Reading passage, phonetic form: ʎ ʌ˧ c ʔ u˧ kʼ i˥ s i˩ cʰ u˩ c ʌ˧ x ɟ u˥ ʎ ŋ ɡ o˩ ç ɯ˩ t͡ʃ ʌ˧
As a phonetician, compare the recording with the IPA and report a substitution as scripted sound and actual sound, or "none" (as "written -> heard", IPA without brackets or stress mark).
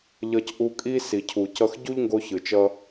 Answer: o˩ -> o˧